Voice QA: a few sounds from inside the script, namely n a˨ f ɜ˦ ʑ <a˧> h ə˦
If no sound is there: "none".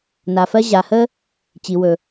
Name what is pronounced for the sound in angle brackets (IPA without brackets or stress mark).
a˨